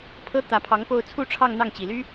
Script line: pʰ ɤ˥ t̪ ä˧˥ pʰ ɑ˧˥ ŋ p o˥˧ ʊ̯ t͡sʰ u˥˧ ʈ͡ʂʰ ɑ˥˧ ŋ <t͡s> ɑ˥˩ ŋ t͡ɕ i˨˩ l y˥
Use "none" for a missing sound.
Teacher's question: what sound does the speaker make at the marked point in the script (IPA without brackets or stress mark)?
n̪